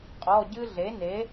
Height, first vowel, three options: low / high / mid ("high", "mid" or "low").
mid